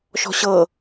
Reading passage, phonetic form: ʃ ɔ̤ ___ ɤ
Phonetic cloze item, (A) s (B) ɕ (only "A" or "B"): B